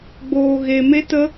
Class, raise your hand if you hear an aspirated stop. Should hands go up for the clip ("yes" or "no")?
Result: no